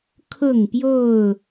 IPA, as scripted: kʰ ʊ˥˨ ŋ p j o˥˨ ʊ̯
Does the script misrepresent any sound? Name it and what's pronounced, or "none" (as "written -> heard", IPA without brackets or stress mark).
none